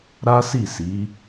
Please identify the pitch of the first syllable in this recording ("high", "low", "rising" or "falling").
high